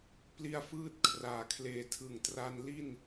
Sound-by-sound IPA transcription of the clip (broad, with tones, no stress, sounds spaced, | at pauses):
p l i˧ a̯ f ɯː˦˥ t̚ kʰ r aː˨˩ kʰ l eː˨˩ tʰ ɯ˨˩ ŋ t r a˧ n l i˥˩ n